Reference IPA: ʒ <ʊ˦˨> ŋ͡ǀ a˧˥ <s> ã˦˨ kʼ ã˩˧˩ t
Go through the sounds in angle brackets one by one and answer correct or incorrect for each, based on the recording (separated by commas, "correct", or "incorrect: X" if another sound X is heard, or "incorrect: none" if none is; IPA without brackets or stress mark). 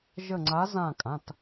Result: incorrect: ə˦˨, incorrect: z